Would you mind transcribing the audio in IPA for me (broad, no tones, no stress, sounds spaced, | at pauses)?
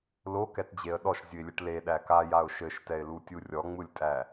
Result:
l o k ɛ t d͡ʑ e ə̯ ɗ ɔ ʃ zʲ ɨ ɪ̯ lʲ ɘ ʈ l e ɗ æ k a j a ʊ̯ ʃ ɘ ʃ t ɛ ɪ̯ l u tʲ u rʲ ɔ ŋ͡m ɯ lʲ tʼ æ